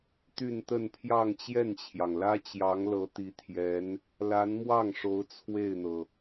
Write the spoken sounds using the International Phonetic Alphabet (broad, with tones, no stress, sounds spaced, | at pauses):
t̪ y˥˧ n t̪ ə˥˧ n pʰ j ɑ˥˧ ŋ t͡ɕ j ɛ˥˩ n t͡ɕʰ j ɑ˩ ŋ l ä˥ t͡ɕ j ɑ˧˥ ŋ l ɤ˧˥ t̪ i˧˥ t̪ʰ j ɛ˧˥ n | l a˧˥ n m w ɑ˥˩ ŋ ʂ o˧˥ ʊ̯ t͡sʰ w e˥˩ ɪ̯ n̪ ɤ˩